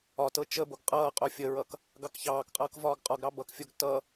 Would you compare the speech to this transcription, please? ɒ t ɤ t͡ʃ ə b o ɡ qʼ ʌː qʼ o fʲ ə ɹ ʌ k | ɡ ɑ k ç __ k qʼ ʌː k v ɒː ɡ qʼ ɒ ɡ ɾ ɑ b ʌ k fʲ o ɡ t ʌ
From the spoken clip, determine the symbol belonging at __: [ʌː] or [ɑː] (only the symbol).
ɑː